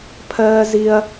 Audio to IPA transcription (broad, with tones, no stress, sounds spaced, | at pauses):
pʰ ɜː˧ z i˧ ɐ̯